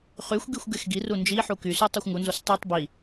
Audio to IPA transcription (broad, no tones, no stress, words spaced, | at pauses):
χyxʷɡixʷ ɡexɡiru nd͡ʒi ħukysu tˤoxʷŋunzos tˤytˤ bi